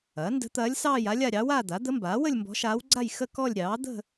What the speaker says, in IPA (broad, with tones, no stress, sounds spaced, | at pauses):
ɐː˩˥ n d ə̤˧˥ t̪ ɐː˧˥ lʲ s ɑː˥˧ j a˧˥ lʲ a˥˧ ɾʲ ɑ˧˥ w aː˥˧ d̪ a˩˥ d̪ ə˧˥ m b aː˩˥ w ə˥˧ lʲ m b ɔ̤˧˥ ʃ aː˧˥ w ɡ͡ǀ a˥˧ j x ə˥˧ k ɔ˥˧ lʲ ɾʲ ɑː˩˥ d̪ ə̤˥˧